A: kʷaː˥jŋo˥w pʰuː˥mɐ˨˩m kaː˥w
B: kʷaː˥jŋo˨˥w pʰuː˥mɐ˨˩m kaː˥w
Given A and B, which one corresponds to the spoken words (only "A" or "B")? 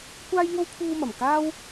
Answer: A